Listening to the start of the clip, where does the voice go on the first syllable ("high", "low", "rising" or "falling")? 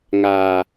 low